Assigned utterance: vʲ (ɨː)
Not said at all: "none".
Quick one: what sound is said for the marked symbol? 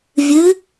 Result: ɨ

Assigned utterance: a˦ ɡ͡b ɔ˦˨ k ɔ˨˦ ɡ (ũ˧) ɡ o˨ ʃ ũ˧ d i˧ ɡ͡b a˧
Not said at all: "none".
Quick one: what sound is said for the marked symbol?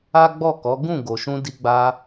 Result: ũ˦˨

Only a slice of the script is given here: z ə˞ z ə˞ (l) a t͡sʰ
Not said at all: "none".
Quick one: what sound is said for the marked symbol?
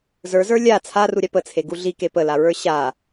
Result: lʲ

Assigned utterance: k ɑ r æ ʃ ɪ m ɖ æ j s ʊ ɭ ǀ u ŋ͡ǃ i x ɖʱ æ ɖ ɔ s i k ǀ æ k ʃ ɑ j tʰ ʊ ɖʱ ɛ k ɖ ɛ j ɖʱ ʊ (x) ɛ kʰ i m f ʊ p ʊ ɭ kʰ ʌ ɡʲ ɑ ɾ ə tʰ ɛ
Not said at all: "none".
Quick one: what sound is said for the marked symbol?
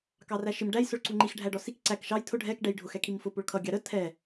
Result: x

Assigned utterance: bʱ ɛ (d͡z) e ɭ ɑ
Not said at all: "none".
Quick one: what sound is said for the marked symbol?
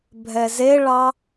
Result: z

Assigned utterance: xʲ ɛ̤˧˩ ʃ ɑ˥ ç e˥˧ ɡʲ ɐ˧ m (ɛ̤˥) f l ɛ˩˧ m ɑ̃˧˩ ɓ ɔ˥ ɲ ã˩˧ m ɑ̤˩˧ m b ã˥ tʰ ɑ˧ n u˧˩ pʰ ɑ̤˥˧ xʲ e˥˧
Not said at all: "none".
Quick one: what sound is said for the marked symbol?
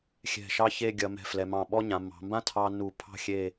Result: ɛ̤˧˩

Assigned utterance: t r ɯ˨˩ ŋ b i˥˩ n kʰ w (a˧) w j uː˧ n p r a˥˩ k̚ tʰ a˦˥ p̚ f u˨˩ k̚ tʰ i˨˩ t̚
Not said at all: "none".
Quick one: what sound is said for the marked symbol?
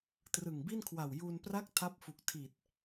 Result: a˨˩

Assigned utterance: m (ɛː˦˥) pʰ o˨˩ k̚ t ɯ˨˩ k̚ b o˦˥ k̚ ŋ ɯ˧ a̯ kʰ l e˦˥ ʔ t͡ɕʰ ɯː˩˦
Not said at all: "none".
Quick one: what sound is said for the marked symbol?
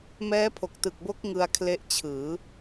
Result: ɛː˦˥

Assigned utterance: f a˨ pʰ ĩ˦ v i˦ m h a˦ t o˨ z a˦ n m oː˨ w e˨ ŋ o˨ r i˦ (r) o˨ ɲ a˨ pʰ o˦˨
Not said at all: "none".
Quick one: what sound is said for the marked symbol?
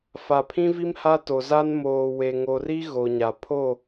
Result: ɣ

